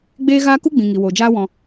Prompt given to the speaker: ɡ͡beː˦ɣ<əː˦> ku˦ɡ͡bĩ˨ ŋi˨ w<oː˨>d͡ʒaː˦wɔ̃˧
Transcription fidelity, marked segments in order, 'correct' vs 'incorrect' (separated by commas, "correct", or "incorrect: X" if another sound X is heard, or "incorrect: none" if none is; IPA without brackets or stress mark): incorrect: aː˦, correct